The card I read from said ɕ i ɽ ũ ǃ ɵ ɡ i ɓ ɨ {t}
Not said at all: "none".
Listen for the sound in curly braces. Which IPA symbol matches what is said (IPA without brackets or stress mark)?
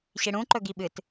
t